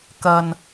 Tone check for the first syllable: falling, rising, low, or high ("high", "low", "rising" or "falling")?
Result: low